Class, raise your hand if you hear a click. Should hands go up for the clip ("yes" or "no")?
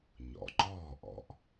yes